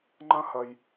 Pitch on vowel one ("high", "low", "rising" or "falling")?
high